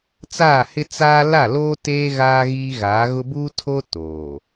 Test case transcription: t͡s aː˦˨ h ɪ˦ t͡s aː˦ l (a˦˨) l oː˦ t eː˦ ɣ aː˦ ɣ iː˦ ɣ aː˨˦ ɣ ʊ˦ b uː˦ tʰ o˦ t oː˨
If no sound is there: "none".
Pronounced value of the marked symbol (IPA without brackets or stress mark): a˦˨